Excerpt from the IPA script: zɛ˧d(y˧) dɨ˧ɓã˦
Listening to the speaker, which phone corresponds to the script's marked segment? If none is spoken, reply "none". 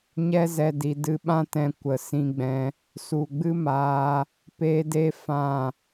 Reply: i˧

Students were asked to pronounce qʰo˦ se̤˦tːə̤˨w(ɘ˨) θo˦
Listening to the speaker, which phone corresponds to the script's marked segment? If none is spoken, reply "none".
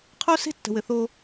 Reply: ɘ˨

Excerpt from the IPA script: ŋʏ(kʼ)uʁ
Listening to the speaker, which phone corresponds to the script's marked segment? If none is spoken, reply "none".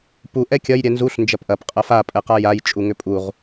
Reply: pʼ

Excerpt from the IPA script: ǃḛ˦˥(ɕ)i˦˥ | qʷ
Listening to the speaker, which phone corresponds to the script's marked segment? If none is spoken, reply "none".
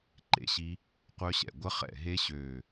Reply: ɕ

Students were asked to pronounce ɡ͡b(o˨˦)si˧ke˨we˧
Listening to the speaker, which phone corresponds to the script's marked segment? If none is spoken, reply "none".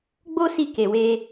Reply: o˦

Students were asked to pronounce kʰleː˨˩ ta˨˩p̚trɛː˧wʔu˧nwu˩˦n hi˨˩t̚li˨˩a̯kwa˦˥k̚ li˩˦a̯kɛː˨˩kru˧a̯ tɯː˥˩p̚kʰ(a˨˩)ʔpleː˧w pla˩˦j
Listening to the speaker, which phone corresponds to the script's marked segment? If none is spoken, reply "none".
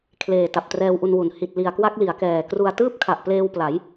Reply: a˨˩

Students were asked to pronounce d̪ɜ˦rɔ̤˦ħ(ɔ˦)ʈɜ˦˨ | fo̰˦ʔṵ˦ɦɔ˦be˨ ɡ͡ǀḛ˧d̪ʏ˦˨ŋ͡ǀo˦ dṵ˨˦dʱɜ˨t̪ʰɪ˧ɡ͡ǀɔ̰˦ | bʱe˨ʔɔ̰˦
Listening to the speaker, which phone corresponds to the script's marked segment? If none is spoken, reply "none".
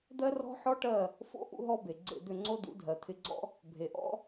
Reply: ɔ˦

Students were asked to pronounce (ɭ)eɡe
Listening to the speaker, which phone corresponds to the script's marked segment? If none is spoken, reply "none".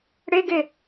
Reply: ɽ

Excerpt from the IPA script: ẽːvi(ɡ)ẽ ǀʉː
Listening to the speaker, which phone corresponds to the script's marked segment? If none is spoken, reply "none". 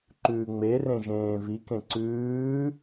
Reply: k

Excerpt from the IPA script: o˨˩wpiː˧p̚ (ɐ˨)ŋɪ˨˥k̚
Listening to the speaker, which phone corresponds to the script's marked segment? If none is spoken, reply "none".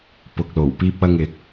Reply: ɐ˧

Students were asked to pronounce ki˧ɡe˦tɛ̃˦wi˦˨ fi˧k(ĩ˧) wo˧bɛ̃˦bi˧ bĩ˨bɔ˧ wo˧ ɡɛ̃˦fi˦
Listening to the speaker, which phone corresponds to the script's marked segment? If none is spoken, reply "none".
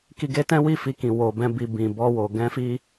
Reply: ĩ˨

